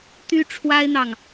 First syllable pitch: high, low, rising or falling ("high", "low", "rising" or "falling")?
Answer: high